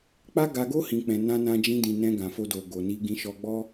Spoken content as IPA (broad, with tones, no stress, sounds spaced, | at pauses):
k͡p a˦ ɡ a˧ ɡ o˦ h ĩ˧ k͡p ɛ̃˧ n ã˦ n ã˧ d͡ʒ ĩ˧ d ĩ˨ n ɛ̃˧ ɡ ã˨ f o˧ d o˨ ɡ o˨ n i˧ ɡ ĩ˧ ʃ ɔ˧ ɡ͡b ɔ˦